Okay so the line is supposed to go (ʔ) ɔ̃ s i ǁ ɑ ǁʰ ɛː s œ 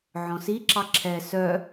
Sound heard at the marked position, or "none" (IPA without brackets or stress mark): ʕ